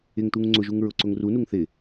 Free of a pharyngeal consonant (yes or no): yes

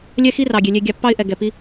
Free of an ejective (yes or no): yes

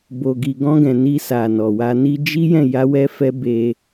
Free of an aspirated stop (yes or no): yes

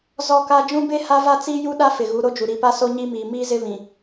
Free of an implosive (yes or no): no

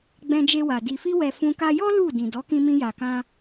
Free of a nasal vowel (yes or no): no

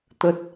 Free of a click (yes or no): yes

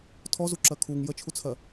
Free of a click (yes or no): no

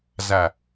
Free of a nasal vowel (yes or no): yes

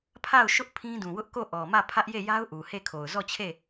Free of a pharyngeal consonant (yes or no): yes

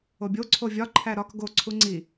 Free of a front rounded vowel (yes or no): yes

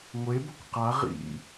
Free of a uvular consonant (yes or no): no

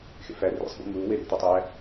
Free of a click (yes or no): yes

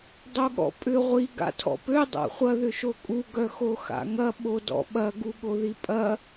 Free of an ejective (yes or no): no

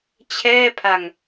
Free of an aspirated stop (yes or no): no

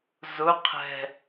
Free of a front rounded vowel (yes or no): yes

